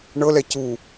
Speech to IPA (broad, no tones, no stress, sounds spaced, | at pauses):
ɳ ɤ l ɛ c u